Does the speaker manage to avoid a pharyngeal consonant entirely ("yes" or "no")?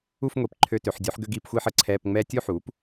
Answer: no